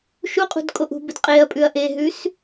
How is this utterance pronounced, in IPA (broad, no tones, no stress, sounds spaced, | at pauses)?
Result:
ʃ u qʼ ṳ d kʼ o ʔ ṳ b ɨ d qʼ e ɐ̯ pʼ ʉ ɐ̯ ʔ e ɦ ʉ s